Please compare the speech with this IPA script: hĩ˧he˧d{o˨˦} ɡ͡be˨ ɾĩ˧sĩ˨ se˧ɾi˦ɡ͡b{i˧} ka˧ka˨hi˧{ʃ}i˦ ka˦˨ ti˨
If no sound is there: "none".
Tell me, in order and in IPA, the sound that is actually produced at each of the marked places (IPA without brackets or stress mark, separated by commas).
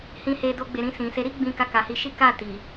o˧, ĩ˧, ʃ